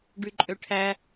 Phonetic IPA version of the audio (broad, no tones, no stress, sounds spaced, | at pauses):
ɖ y ǃʼ ø ʈʰ æ